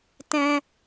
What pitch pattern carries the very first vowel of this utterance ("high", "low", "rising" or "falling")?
high